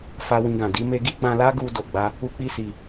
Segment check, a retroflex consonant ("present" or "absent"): absent